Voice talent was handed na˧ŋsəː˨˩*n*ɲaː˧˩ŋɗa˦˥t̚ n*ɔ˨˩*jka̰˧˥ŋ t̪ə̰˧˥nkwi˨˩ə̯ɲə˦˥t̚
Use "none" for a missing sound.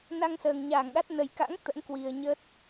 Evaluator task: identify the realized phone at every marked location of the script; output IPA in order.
ŋ, ə˨˩

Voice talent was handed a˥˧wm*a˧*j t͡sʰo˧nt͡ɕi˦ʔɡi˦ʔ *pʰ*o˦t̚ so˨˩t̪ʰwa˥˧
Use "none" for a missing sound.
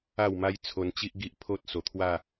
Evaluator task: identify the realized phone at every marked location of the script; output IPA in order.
a˦, pʰ

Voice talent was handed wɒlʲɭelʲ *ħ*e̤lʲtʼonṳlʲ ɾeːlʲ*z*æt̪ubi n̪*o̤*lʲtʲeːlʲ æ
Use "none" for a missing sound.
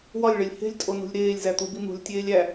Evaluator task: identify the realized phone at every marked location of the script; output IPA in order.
h, z, ṳ

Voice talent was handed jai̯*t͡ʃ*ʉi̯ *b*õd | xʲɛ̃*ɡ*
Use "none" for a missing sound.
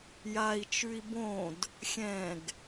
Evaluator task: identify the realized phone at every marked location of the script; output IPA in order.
t͡ʃ, b, ɡ

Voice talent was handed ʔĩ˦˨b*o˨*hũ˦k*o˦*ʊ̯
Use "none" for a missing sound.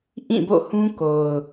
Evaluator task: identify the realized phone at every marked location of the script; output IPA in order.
o̰˦˨, o˨

